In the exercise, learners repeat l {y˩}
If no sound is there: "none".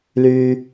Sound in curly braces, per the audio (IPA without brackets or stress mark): y˩